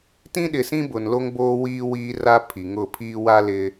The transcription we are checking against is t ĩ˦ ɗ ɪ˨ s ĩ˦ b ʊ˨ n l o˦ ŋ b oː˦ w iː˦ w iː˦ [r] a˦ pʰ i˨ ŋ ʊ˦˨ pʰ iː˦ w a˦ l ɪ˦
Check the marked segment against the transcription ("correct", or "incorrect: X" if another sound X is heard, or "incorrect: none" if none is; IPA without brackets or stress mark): correct